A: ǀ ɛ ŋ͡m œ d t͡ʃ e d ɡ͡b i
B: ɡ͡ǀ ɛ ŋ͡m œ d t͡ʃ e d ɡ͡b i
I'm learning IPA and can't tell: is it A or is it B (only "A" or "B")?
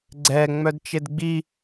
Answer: B